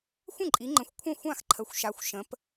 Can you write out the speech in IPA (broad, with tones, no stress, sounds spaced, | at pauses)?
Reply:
xʷ ə̃˥˩ ǃʼ i˩˧ ŋ͡ǃ ə̃˩˧ xʷ kʷʰ ə̃˥˩ xʷ ã˥˩ x ǃʰ ə˩˧ xʷ ʃ a˩˧ xʷ ʃ ə̃˩˧ p